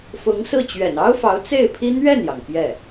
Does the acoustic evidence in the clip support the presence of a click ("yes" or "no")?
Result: no